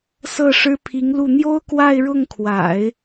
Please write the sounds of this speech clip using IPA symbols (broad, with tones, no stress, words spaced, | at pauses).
sɤ˥˩ʂɻ̩˥ pʰi˧˥ŋlu˥˩ n̪jo˥ʊ̯kwa˥˧ɪ̯ɻʊ˥˩ŋkʰwa̰˨˩˦ɪ̯